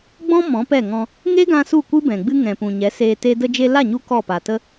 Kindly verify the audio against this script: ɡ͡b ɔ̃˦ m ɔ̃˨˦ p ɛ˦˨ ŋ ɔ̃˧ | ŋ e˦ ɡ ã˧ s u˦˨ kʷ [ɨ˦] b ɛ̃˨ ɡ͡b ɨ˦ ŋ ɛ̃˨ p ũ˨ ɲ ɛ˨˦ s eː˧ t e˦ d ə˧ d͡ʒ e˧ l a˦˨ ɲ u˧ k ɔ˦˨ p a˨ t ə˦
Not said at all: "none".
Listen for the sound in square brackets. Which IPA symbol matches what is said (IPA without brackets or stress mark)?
ɨ˦